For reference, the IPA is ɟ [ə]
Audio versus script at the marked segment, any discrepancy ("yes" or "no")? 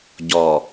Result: yes